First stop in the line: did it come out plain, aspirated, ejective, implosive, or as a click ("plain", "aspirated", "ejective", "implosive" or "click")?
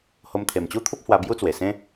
aspirated